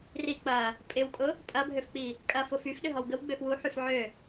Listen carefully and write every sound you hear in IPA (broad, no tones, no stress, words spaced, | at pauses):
ri k͡pɐ | pʼɪwkʼʊ | pʼɐbʱøfk͡pi | kʼɐfʊ fyfɗʏɦɔw ɡəwɡ͡bøf wuħyf ʕø